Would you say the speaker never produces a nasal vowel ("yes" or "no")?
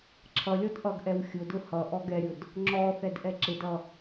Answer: yes